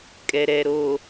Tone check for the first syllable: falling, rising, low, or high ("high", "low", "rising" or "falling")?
low